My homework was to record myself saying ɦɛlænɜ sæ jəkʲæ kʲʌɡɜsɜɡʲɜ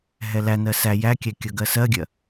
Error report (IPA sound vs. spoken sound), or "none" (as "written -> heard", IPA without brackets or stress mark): ə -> æ